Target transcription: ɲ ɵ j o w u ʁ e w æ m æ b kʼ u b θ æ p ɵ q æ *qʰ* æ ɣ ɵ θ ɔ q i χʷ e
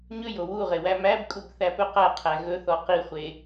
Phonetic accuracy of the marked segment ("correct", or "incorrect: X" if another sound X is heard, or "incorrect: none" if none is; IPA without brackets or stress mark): correct